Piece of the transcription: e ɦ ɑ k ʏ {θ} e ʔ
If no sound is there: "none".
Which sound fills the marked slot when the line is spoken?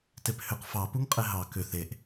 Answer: θ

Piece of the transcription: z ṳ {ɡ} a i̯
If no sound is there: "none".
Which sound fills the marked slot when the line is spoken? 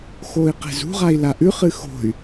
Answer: ʁ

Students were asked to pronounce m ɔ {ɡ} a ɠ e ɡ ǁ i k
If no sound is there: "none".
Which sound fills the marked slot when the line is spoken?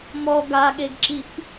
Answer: ɡ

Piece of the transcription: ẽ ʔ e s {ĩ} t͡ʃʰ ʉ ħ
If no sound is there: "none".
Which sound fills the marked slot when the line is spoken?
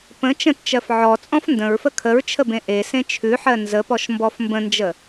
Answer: ẽ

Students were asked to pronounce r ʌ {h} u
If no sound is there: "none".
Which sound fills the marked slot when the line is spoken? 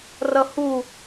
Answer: h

